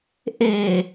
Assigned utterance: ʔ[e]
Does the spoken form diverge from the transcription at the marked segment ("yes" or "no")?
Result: no